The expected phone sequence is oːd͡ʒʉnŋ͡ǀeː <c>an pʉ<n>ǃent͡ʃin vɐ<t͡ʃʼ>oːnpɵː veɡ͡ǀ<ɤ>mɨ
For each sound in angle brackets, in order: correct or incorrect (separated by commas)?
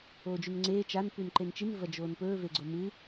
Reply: incorrect, correct, incorrect, incorrect